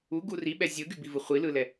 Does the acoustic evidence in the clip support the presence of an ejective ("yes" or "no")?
no